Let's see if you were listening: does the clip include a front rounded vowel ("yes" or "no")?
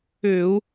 yes